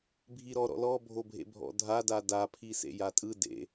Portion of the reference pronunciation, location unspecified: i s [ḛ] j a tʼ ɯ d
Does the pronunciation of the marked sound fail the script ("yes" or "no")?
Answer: no